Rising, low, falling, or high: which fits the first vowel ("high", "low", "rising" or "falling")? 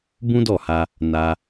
high